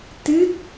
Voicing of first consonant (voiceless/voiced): voiceless